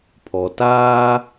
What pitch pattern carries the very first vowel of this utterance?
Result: low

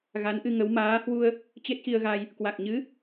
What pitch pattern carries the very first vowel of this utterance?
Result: rising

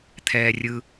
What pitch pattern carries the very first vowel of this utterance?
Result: low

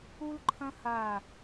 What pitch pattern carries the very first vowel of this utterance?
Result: high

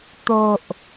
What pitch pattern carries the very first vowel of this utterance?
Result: low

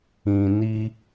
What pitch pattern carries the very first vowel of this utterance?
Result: low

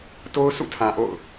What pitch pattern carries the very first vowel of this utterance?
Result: high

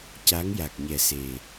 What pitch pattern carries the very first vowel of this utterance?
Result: rising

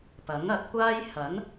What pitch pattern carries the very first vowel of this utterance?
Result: rising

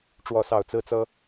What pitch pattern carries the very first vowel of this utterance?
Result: falling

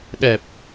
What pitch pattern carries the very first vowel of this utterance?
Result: low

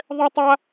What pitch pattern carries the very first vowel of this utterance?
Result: high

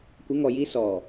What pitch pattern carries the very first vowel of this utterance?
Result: rising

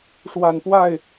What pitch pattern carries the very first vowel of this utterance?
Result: low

